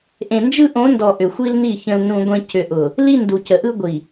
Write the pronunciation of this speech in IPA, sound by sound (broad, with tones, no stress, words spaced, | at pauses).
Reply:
ʔẽ˨nd͡ʒɯ˦ʔõ˨˦ndɔ˨ ʔʏ˨xʷi˦lni˦˨ çə̃˦lnũ˦ɡʷẽ˦ cʏ˨ʔʊ˨ | li˦ndu˨cə˨ʔɯ˦ ɡʷi˨